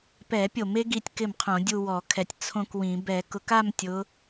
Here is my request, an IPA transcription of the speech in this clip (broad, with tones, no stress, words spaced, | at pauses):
pɛ˧˩˧pʲo˧˩˧me˨˦ ɡi˥˧tʲkɪ˥˩mqʰõ˧˩˧ dʲu˥˧wɔ˧˩˧kʰɛ˧˩˧tʲ t͡sʰõ˥˧kwĩ˧˩˧ bɛ˧˩˧kʊ˨˦ka˥˧m tʲʊ˨˦